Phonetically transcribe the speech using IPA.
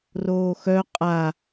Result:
r oː x œ qʼ a

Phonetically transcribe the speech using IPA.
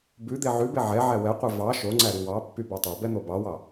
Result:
b ʉ d̪ e ʕ ʉ b e ʕ ɛ ʕ æ w ɛ qʷ e v ɑ ʃ o ŋ͡ǀ æ ɾ y w ɑ pː y b e tˤ e b ɛ n̪ o b ɑ w ɑ

